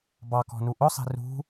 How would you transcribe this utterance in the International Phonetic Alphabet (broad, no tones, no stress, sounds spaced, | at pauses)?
b ɑ k ɔ̤ n u ʔ ʊ sˤ i̤ r ṳ